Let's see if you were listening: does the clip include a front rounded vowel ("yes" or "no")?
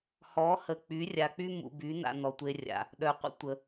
yes